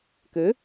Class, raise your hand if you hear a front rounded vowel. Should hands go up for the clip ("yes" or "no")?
yes